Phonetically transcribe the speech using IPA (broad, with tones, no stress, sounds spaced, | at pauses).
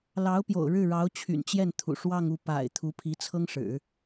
l ɑ˧˥ ʊ̯ p j o̰˨˩ ʊ̯ ɻ ɻ̩˥˩ ɻ ɑ˧˥ ʊ̯ t͡ɕʰ y̰˨˩ n t͡ɕ j ɛ˥˩ n t̪ʰ ṵ˨˩ ʂ w ɑ˥˧ ŋ u˥˩ p a̰˨˩ ɪ̯ t̪ʰ u˧˥ pʰ i˧˥ t͡sʰ ɤ˥ ŋ ʂ ɻ̩˨˩˦